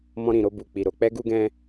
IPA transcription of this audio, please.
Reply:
m ɔ̃˧ ɾ ĩ˨ ɾ o˧ b u˨ k͡p i˨ ɾ o˧ k͡p ɛ˦ ɡ u˦ ɡ ɛ̃˦

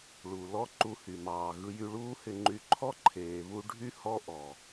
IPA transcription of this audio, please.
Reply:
ɭ u˩ l ɔ˥ ǃ u˧ h y˩ m ɑː˩ ɣ ɯ˧ j y˧ ɭ uː˥ h ɪ˧ ŋ͡ǃ y˧ ǃʰ ɔ˥ ǃʰ eː˩ β u˧ ɖʱ y˥ h ɔ˥ ʔ ɔ˩

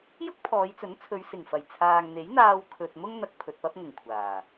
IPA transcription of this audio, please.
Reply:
j ʊ˥ k̚ pʰ ɔː˨˧ j t͡s ɵ˨˥ n t͡sʰ ɵ˨˧ ɥ s ɪ˨˩ ŋ f ɐ˨˩ j t͡sʰ aː˨ ŋ n̪ e˨˥ j n̪ aː˧ w kʰ ɵ˨ t̚ m ʊ˥ ŋ n̪ ɐ˨ k̚ pʰ ɵ˨ t̚ p ɐ˥ p̚ ŋ ʊ˨˩ ŋ kʷʰ aː˨˩

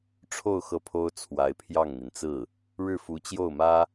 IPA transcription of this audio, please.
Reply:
ʈ͡ʂʰ o˥˧ ʊ̯ x ɤ˥˩ pʰ o˥ ʊ̯ t͡sʰ w a˧˥ ɪ̯ pʰ j ɑ˥˩ ŋ n̪ i˩ n t͡s ɹ̩˥˩ | ɻ ɻ̩˥˩ f u˧˥ t͡ɕ j o˥˩ ʊ̯ m ä˥

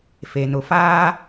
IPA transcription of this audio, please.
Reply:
f e˨ n ʊ˨ f aː˦

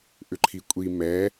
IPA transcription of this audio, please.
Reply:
ʔ ʏ ǃʰ i kʷʼ i m ɛ

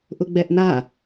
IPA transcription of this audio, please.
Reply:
ʔ ʊ ɡ͡b ɛ ʔ n a

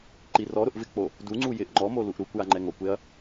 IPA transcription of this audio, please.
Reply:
ǃ i r ɔ ɾ ʊ ʔ v ɪ k͡p o | d u ŋ͡ǀ u j ɪ ʔ ŋ͡ǃ ɔ m o l u ʔ ɾ u kʷ j a ŋ͡ǃ ɛ ŋ o kʷ e ɐ̯

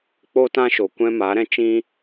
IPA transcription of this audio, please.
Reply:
k͡p o˦ t ã˦ ʃ o˨ kʷ ɛ̃˦ m a˨˦ ɾ ɛ̃˦ t͡ʃ ĩ˦

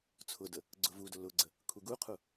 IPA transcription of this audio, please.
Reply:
t͡sʰ ʊ d ə | ɡ͡ǀ ʊ v u d ʊ l ʊ ɡ͡ǀ ə | kʰ u ɡ u qʰ u

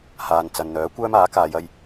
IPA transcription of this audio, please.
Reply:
h aː˨ n t͡s ɐ˨ n n̪ œː˨˥ kʷ œː˥ m aː˨˥ k aː˨˧ j ɐ˧ j

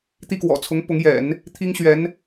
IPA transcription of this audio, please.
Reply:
t̪ i˥˩ k w ɔ̰˨˩ t͡sʰ ʊ˧˥ ŋ p ʊ˧˥ ŋ j ɛ̰˨˩˦ n | t̪ʰ i˥ ŋ ɕ ɥ ɛ˧˥ n

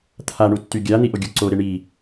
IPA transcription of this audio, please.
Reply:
t̪ʰ a ɳ u tː y ɡʲ a n̪ i ʔ o ɡʲ o ǀ o ɾ e ɳ i

